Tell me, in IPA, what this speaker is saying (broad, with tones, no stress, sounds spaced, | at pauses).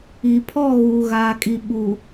i˨ pʰ ɔ˦˨ ɣ uː˨ ɣ aː˨ kʼ i˨ ɓ uː˨